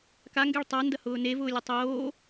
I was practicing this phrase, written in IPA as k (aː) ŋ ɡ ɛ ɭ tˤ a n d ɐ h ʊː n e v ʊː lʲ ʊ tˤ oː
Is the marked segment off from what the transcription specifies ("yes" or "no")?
yes